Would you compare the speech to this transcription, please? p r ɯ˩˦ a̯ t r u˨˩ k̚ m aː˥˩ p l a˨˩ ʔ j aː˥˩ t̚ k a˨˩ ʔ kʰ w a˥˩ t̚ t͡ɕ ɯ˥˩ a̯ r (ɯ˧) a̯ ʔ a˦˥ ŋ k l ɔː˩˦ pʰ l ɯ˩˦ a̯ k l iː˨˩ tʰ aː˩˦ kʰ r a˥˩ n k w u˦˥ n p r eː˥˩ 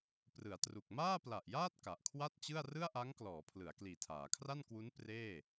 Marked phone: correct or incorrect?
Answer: incorrect